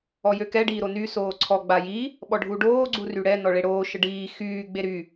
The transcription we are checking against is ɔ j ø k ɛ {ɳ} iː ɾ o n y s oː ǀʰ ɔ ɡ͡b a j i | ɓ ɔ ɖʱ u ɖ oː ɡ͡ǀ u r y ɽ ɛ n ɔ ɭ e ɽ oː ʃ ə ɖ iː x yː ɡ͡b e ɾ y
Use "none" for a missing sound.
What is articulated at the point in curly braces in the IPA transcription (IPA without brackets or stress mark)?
ɖ